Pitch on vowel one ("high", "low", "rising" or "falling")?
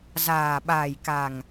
low